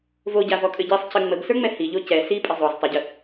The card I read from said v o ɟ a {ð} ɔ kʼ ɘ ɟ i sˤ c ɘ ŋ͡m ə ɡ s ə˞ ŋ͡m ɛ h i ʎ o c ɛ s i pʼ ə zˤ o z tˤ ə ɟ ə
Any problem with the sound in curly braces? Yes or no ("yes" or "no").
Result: yes